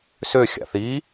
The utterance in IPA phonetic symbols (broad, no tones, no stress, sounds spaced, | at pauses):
s ø xʲ a̰ θ i